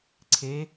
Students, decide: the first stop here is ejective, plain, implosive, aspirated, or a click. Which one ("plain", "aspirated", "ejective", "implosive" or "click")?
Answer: click